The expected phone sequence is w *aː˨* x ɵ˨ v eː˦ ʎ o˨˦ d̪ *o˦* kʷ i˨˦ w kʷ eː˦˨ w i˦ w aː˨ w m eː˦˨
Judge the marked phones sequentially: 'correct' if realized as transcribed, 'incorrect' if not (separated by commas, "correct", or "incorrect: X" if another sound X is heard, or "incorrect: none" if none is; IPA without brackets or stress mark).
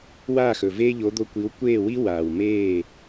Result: incorrect: aː˦˨, incorrect: o˧